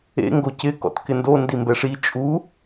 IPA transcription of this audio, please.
ḛ ŋ ɡ o c ɪ k ɔ̰ t k ɪ n d o n d i m b ɛ ʂ i t͡ʃʼ u

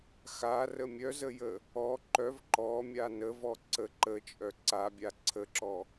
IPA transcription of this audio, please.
x a r ə mʲ œ z ə j ə | ɔ ǃ œ v ǃ ɔ mʲ a n ə v ɔ ǀ ə ǃ ə t͡ʃʼ œ ǀ a bʲ a ǀʰ ə ǁ ɔ

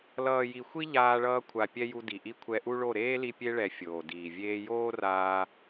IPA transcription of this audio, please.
l ʌː˨ j i˨ xʷ i˦ ʎ aː˧ ɭ ʌː˧ kʷʰ a˨ pʲ ɛ˦ j u˧ d i˨ ʔ i˦ kʷʰ ɛ˧ ʔ u˦ ɭ o˦˨ ɾ eː˦ l i˧ pʲ e˧ ɭ ɛ˨ fʲ oː˨ d iː˨ vʲ eː˧ j oː˦ r aː˧

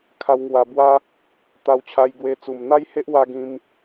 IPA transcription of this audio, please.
kʰ a˧ w ŋ w a˧ b w a˦ | t̪ a˧ w t͡ɕʰ a˧ j ɡ w e˧ t͡s u˨˩ m n̪ a˦ j h e˦ ʔ w a˦ ɡ ĩ˦ m

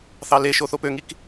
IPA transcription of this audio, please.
θ ɑ l e ʃ o θ o p ø ŋ i k

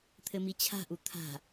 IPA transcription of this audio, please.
t̪ʰ ɘ m i t͡ɕʰ a̤ ʔ u t̪ʰ a̤

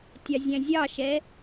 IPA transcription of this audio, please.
tʲ ɑ zʲ æ̃ zʲ ɑ ʃ ɛ

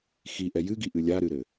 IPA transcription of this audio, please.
x i ʔ ɛ j ɨ ɡ i ʔ ɨ lʲ a ɾ ɨ ɾ ɘ

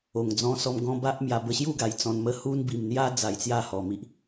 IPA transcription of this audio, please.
o˨˩ ŋ d͡z ɔ̃˧ s ɔ˧ m ɡ ɔ̃˧ b a˦ ʔ m j a˧ b ə˧ ɕ j u˥˧ ɡ a˨˩ j t͡s ɔ̃˧ n m ə˦ h u˦ n b i˨˩ m n̪ j a˧ d͡z a˧ j t͡s j a˥˧ h ɔ˧ m i˦ ʔ

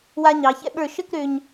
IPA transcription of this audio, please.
w a˧ ɲ ɑ˩˧ ç ɛ̰˥ ɓ ə˞˧˩ ʃ ə˥˧ k ɾ ø˧ ɲ

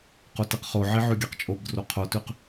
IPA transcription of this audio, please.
q o t i q χ o ʕ i ʕ ʉ ɡʲ a q t͡ʃʼ o b d r o qʰ o t ʉ q

